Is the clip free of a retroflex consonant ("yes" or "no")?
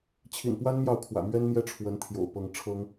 no